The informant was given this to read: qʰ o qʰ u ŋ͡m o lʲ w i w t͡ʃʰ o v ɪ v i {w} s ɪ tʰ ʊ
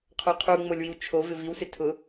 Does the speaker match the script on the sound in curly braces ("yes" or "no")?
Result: yes